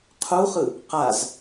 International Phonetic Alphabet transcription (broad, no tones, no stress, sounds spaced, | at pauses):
qʰ u χ ɯ | q a z